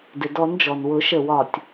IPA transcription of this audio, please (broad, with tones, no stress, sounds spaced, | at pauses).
d ɪ˩ d ɔ˨˩˦ n d͡ʒ ɔ˩ n w ʊ˨˩˦ ʃ ə˧˩ w ɒ˧˩ tʲ